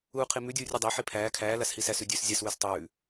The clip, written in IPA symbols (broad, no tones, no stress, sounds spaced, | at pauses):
uː qʰ i m ʉ dʲ uː rʲ u dˤ æ ħ i pʰ æː kʰ æː l a s h i s æ s ʉ dʲ ʉː s zʲ a s w ʉ s tˤ ʉː